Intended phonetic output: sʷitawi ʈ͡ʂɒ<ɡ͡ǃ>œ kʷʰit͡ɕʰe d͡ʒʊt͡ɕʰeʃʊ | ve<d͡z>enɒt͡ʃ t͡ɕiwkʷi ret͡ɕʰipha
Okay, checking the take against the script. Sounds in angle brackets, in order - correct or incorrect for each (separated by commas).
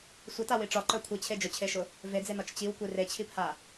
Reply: incorrect, correct